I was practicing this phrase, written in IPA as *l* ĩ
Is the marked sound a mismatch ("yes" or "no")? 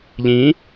yes